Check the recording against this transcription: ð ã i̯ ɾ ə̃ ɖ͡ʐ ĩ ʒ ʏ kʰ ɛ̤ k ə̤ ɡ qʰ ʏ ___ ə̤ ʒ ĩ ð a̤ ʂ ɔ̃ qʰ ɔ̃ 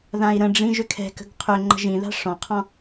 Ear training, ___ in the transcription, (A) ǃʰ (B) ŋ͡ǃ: B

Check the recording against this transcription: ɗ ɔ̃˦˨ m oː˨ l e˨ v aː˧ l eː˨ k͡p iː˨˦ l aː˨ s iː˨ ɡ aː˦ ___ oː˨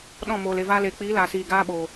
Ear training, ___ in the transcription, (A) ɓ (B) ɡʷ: A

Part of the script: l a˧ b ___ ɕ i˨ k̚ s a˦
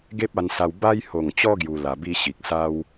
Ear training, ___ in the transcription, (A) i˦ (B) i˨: A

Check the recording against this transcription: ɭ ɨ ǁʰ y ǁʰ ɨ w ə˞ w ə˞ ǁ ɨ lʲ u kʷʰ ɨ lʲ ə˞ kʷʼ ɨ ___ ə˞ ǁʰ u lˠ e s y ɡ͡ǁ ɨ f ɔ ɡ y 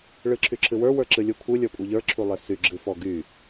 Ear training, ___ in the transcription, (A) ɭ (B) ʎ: B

